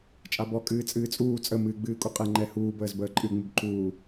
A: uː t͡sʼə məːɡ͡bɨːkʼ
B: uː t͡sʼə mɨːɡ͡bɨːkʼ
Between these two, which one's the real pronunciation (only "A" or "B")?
B